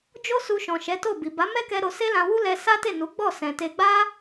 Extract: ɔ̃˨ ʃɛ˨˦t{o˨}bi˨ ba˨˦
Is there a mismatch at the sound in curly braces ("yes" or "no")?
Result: yes